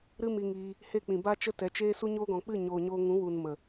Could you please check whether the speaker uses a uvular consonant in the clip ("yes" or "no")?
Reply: no